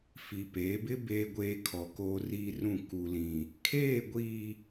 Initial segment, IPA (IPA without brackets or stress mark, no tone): f